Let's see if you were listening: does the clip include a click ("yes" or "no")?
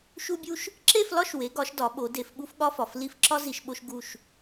yes